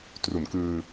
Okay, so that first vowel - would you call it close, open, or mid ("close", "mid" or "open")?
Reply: close